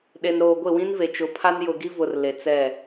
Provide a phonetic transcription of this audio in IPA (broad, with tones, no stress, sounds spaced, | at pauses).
ɗ e˨ n ɾ oː˨ ɡʷ ɪ˦˨ w ĩ˦ n v e˨ t͡ʃ ʊ˨˦ pʰ a˦ n j ʊ˨ ɡ i˦ v ʊ˨ r l e˨ t͡s ɛ˦˨